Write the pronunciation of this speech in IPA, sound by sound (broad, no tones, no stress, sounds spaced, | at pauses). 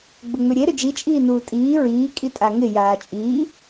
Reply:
ɡ͡b ʊ ŋ͡m ʏ ɾʲ e ɾ ʏ d͡ʒ i t͡ʃʼ iː n uː tʼ iː ɹ iː kʼ i tʼ a ŋ ɪ j aː t͡ʃʼ iː